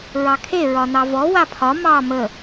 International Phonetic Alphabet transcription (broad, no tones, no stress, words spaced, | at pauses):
ɹɑkʰe ɹɒnɑvɔ wapʰɒ mɑ mə